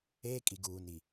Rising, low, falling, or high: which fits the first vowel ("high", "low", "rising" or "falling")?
high